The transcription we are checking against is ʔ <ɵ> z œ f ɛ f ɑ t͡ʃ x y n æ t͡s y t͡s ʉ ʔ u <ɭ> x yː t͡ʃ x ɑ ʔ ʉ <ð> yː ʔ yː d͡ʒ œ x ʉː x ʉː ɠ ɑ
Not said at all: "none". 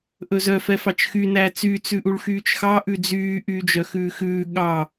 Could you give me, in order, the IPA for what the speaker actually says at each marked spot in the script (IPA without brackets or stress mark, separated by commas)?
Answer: ɵ, ɭ, d͡z